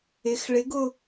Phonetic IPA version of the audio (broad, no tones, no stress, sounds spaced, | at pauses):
ɪ x ɭ ɪ ɡ ʊ